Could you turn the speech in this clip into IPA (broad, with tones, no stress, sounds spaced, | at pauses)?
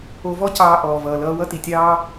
o˨ v ɔ˧ c ɑː˨ ʔ ɔː˨ v ʌː˨ l ʌː˧ w ʌ˦ t i˨ tʲ ɑː˦